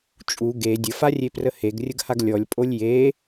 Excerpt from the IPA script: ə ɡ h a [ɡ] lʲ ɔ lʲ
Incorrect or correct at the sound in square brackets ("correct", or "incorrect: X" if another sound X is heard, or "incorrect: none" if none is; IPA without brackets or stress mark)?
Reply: correct